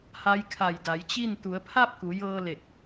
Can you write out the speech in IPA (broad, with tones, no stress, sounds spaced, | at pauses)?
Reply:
h a˧˥ j kʰ a˧˩ j d a˩˧ j t͡ɕ i˥˨ n t̪ u˩˧ ə̯ pʰ a˥˨ p̚ k u˩˧ j ɤː˧ l e˧˩ k̚